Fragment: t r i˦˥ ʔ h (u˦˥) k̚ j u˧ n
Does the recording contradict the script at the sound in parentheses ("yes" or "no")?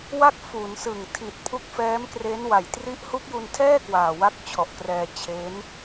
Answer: no